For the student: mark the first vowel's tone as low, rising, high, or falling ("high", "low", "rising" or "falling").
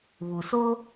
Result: low